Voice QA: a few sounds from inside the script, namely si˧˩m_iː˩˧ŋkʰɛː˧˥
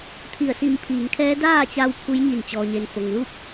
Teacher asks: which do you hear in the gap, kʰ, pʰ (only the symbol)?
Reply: pʰ